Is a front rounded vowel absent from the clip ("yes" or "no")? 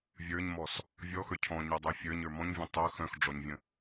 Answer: no